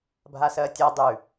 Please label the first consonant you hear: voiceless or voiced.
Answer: voiced